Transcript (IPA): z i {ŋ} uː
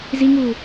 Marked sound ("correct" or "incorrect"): correct